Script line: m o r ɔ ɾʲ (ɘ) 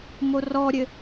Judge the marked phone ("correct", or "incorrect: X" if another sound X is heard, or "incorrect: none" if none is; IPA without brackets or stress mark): correct